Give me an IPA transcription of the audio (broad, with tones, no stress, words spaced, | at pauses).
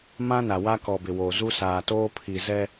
mã˦na˨wa˦ kɔ˨bɪ˨woː˨ zu˦saː˨toː˦ pʰi˨zɛ˦